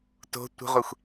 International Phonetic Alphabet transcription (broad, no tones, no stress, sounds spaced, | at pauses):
t o̤ tʷ ə̤ ʁʷ e xʷ